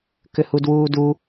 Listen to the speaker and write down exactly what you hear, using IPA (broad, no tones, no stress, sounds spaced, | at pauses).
k ʏ h u d w uː d u